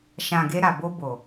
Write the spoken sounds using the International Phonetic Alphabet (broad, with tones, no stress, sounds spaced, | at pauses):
ʃ ã˨ ɡ e˧ ɾ a˨ b o˧ b o˨